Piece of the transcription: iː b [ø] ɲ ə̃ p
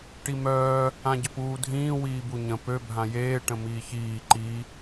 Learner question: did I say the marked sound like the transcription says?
no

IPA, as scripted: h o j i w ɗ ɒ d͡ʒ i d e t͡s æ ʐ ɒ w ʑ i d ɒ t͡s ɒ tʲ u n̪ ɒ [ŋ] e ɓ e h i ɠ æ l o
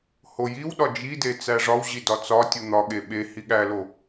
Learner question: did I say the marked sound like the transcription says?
no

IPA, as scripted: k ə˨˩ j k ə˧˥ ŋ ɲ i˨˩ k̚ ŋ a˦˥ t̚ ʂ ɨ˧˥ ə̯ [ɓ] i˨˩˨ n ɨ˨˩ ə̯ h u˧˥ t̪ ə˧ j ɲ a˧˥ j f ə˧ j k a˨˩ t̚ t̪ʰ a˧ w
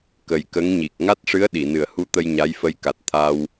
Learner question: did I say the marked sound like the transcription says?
no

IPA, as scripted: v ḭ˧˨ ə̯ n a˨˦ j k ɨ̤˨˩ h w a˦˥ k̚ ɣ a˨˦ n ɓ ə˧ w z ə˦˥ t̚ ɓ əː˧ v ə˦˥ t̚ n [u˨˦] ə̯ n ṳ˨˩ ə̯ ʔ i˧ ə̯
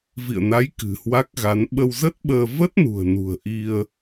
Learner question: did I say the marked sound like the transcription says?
no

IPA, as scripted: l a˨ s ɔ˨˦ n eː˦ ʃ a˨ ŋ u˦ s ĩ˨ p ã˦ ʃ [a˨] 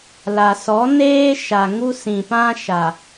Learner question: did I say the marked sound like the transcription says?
yes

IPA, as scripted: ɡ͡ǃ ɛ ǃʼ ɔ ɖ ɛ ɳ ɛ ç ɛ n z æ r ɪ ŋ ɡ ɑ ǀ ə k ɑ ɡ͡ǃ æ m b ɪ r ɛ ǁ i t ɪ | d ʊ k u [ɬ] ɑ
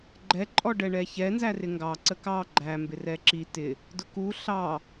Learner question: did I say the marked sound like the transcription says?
yes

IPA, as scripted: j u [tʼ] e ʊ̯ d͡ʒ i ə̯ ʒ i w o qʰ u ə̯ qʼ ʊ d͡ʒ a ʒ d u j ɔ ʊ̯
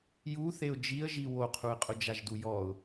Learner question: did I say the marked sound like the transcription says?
no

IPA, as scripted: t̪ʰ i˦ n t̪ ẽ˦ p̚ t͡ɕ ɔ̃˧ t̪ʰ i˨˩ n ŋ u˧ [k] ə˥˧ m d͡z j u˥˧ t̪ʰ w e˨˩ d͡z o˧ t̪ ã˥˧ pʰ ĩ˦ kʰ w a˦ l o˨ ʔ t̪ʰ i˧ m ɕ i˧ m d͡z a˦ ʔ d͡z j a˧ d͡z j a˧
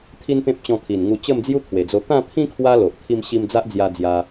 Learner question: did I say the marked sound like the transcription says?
no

